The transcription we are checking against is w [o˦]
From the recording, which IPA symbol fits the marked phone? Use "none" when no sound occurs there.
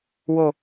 o˨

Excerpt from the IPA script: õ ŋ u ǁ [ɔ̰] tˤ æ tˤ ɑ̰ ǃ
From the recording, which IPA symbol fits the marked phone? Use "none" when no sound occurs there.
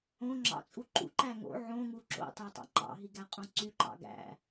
o̰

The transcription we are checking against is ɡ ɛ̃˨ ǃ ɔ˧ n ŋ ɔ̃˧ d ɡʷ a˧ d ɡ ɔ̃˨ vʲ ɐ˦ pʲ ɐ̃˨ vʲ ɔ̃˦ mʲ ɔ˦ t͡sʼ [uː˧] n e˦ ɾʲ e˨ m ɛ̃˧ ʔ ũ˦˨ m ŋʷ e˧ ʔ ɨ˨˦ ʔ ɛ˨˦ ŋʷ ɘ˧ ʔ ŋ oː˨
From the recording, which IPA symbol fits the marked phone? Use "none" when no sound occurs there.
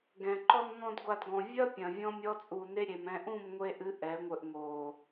uː˧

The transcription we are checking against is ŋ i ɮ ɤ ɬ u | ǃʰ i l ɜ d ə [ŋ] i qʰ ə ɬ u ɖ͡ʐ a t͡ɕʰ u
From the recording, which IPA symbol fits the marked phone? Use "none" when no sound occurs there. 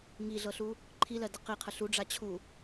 q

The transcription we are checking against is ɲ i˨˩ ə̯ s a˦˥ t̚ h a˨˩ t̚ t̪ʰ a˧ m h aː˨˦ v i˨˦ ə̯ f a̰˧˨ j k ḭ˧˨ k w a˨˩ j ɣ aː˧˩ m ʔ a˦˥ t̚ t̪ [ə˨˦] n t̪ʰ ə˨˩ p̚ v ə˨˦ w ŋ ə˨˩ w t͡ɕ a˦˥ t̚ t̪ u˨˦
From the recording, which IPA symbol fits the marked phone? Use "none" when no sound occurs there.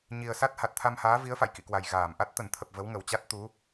ə˧˩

